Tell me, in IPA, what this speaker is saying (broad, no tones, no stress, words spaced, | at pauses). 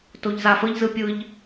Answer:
toʎzafəʎ zɯpʲɯʎ